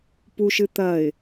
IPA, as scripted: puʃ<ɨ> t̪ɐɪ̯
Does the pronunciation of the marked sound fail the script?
no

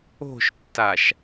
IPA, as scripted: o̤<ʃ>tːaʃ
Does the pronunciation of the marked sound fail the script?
no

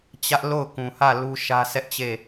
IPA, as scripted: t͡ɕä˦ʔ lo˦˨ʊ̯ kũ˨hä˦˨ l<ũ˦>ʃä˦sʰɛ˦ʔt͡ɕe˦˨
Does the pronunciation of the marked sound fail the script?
yes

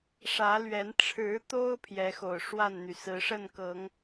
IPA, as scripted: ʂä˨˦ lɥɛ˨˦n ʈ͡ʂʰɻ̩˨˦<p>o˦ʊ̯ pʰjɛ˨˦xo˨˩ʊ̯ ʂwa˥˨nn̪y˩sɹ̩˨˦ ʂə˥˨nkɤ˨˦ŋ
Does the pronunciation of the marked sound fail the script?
yes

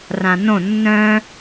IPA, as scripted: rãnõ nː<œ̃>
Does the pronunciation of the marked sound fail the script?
no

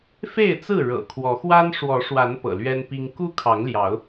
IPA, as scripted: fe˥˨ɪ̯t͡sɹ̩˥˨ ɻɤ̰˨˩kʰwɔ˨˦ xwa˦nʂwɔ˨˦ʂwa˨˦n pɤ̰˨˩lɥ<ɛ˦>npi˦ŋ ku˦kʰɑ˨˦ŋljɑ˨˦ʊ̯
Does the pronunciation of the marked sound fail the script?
no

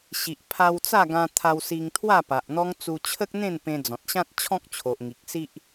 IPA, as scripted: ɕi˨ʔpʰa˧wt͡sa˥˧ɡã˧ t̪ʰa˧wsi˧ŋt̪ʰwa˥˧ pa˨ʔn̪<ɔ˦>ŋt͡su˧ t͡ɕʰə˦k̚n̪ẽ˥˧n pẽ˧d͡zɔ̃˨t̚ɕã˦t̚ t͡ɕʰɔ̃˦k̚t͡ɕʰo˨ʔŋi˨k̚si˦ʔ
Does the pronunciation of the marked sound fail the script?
no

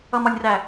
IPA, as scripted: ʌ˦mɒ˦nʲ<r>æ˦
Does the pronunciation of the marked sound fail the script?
no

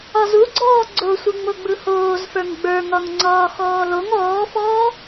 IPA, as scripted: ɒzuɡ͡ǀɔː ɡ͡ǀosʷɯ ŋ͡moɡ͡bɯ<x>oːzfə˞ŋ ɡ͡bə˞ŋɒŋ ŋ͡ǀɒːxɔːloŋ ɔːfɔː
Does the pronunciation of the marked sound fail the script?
yes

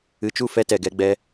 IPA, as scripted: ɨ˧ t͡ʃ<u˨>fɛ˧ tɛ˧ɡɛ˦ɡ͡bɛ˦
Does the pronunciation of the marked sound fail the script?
yes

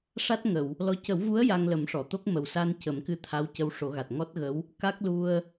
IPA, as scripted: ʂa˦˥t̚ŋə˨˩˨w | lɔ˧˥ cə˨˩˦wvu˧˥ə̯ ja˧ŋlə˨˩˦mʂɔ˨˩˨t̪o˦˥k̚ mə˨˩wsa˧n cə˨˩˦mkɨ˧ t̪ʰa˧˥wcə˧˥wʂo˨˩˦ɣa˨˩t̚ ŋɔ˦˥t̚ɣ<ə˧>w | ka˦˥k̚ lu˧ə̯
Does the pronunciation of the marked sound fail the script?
yes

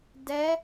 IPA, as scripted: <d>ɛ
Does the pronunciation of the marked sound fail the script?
no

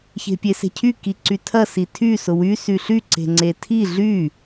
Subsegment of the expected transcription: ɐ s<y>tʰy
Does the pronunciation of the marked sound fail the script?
yes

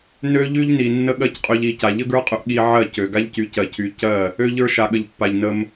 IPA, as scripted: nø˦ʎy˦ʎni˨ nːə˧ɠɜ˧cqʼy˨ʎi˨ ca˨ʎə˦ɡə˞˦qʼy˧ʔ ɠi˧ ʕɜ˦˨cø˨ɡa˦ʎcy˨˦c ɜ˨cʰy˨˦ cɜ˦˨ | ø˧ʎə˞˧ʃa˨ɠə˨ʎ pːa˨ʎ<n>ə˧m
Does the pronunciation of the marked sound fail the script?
no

